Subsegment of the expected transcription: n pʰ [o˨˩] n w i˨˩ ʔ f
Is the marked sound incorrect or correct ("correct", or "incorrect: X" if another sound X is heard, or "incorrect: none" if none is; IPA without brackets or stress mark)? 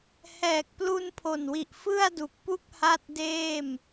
correct